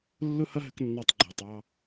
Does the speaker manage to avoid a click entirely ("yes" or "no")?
no